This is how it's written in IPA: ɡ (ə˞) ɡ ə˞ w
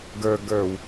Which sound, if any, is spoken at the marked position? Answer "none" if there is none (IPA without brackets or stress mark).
ə˞